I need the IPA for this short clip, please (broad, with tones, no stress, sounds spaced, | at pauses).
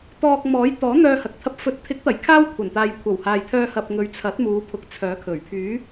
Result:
t̪ ɔː˧ k̚ m ɔː˨˥ j t̪ ɔː˨˥ n̪ œː˧ h ɐ˨ k̚ t̪ʰ ɐ˧ p̚ f ɵ˨ t̚ t̪ʰ ɪ˨˥ k̚ t̪ ɐ˨˩ j kʰ aː˥ w kʷʰ ɐ˨˩ n t̪ aː˨ j kʷʰ ɐ˨˩ w h aː˨ j t̪ʰ œː˧ h ɐ˨ p̚ ŋ ɵ˨˧ ɥ t͡sʰ ɐ˨˥ t̚ m uː˨˧ pʰ ʊ˨ k̚ t͡sʰ œː˨˥ kʰ ɵ˨˩ ɥ pʰ yː˨˥